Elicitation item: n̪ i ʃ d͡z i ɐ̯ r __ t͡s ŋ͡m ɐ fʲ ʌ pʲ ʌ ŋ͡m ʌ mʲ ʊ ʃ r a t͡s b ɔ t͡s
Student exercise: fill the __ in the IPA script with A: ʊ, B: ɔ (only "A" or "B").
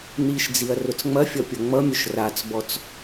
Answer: A